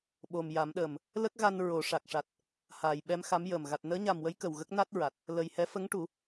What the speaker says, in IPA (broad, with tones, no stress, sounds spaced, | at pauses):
ɓ o˨˩ m j a˨˩˦ m ɗ əː˨˩ m | l ə˦˥ k̚ ɣ a˧ n ɹ o˨˩˨ ʂ a˨˩ k̚ ʂ a˨˩ t̚ | h aː˨˩ j ɓ ɛ˧ m x a˧˥ m j əː˨˩ m ɣ a˨˩ t̚ n əː˧˥ ɲ a˨˩ m w ə˧˥ j k ə˨˩ w ɣ ə˦˥ k̚ n a˦˥ t̚ ɹ a˨˩ t̚ | l ə˨˩ j h ɛ˧˥ f ə˧˥ ŋ ʈ u˨˩˦